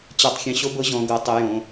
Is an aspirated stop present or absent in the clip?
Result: absent